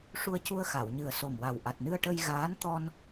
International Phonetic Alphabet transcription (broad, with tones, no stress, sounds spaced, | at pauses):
ʂ u˧ ə̯ c u˧ ə̯ x a˨˩˨ w ɲ ɨ˨˩ ə̯ s o˨˩ m w a˨˩ w ʔ a˨˩ t̚ n ɨ˧ ə̯ ʈ ə˧ j ɣ aː˧˥ n t̪ ɔ˧ n